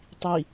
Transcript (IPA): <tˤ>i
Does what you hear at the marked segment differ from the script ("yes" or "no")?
no